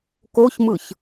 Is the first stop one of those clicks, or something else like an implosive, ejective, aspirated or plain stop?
plain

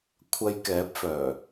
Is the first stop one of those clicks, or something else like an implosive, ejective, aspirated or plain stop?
aspirated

